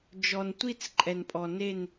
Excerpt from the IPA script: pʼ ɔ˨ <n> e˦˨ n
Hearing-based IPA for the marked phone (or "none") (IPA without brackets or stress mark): n